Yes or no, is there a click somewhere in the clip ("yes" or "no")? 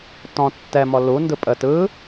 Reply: no